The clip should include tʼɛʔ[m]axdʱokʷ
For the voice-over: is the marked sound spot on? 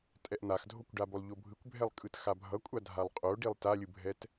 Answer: no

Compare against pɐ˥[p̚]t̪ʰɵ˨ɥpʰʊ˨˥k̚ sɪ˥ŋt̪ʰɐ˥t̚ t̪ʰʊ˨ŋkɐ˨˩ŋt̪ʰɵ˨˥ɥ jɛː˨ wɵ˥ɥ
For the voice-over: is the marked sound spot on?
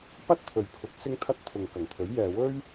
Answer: no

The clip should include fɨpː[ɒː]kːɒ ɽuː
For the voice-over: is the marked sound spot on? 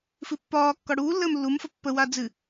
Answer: yes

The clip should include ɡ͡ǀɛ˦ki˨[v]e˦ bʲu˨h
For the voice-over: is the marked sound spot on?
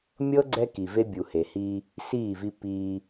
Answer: yes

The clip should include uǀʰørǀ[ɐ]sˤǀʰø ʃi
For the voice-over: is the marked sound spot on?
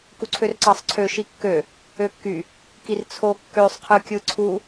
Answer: no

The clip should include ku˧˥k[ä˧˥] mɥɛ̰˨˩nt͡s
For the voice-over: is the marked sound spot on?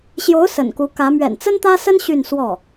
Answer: yes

